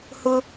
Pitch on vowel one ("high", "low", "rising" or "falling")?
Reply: high